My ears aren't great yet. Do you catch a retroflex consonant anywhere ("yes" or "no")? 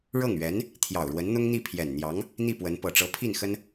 yes